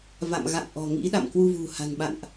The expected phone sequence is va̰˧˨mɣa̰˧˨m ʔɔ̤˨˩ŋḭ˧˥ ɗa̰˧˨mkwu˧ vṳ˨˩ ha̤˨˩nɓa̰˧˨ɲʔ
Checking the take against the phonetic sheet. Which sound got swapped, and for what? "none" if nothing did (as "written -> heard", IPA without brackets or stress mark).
ɲ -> n